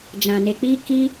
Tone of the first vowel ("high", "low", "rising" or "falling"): low